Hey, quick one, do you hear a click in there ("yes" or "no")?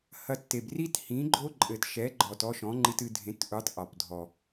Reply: yes